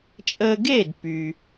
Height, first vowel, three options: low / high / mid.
mid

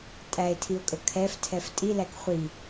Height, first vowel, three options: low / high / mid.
low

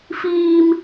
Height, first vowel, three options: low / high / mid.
high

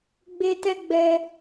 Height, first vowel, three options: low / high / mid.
mid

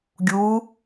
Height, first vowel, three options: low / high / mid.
high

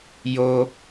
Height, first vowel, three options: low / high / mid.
mid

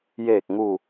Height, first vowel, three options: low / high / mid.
mid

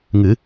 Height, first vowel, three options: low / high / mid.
high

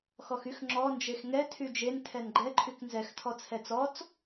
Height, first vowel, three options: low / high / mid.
mid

